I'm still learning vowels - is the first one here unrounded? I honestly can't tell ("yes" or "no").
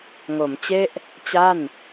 no